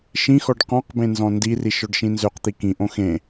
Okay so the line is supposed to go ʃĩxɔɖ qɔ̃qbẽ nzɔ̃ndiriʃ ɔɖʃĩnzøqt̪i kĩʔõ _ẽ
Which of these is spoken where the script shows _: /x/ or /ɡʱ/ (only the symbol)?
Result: x